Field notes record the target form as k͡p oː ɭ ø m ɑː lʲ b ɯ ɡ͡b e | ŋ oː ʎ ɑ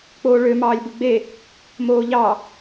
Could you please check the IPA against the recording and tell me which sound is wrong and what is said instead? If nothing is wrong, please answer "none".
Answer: ŋ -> m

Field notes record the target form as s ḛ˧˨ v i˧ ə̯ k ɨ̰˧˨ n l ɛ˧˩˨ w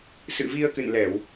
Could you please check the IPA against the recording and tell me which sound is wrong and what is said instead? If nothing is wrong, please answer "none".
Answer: ḛ˧˨ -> ɨ̰˧˨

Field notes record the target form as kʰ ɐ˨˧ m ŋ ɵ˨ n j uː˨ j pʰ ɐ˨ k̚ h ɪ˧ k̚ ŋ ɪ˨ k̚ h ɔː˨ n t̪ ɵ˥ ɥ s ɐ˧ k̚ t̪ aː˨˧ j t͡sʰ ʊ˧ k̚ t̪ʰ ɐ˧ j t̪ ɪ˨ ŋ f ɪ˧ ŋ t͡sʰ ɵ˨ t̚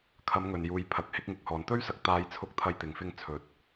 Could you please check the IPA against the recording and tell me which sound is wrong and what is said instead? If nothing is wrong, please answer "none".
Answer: none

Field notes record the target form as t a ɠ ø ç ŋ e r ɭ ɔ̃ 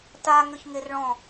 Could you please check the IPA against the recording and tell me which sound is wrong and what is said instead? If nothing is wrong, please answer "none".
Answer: ɠ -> ŋ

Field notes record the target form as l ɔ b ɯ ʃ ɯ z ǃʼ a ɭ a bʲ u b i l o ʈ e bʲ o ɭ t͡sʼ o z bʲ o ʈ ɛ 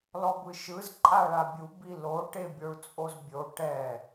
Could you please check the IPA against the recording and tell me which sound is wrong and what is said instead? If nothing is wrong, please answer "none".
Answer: none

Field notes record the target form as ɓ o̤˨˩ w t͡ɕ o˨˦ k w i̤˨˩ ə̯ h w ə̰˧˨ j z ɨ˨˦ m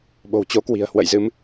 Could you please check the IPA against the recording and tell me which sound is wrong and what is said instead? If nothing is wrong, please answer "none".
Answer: none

